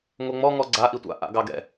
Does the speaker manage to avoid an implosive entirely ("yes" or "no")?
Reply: yes